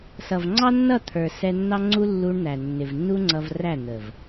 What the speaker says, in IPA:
sʌ˨vŋ͡ǀɑ˦nːʌ˦˨ t̪ʰə˞˨ sɛ˧nːɑ˦ŋ͡ǀu˦ lːu˧ɳn̪æ˨ nːɪ˨vnːu˦ŋ͡ǀʌ˧v ræ˦˨n̪ə˨v

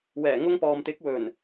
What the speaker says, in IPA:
wɛː˨˩ŋʊ˧ŋpɔː˨mt̪ɪ˨˥k̚ wɵ˨˩n

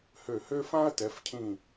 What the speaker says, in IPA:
hø˧˩hø˥ fã˥ɐ̯tɛ˩˧fcʰĩ˧˩

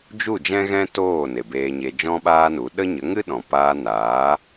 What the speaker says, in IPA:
d͡ʒu˦˨d͡ʒɛ̃˦ɣɛ̃˦ toː˦˨ ne˨beː˧ɲe˧ d͡ʒɔ̃˦ɓaː˦nu˨˦ ɗə˦ɲə˨˦ ŋɨ˦ɗɔ̃˨ paː˧naː˨˦

